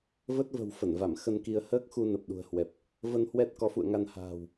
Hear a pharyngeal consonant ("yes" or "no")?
no